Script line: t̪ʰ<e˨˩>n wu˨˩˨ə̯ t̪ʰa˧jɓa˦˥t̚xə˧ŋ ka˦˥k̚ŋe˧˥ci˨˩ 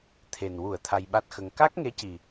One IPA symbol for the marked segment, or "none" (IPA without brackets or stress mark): e˨˩